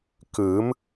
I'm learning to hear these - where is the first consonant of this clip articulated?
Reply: velum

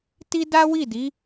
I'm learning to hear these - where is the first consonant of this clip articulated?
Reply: tongue tip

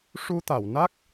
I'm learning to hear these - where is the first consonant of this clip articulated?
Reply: retroflex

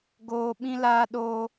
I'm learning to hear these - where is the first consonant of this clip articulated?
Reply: velum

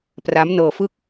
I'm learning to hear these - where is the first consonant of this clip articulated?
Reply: lips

